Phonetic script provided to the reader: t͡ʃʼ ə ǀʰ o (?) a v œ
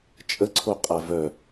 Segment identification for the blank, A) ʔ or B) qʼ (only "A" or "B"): B